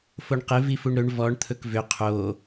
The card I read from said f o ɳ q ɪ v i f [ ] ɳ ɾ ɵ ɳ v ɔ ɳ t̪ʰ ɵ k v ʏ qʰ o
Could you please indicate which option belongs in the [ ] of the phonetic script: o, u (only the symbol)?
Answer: u